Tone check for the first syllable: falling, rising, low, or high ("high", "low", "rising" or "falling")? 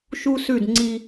high